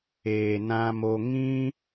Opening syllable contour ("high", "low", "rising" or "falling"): low